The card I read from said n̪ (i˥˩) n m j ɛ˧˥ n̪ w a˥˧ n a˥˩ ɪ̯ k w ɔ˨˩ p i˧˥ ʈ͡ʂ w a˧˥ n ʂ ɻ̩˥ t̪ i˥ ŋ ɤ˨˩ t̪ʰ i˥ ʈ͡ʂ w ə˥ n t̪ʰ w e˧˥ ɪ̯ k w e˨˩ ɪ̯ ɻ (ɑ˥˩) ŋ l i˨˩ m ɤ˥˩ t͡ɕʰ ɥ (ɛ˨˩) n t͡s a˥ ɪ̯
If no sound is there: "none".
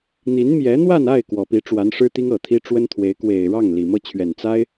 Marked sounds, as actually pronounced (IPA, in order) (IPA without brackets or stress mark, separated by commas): i˧˥, ɑ˥˩, ɛ˨˩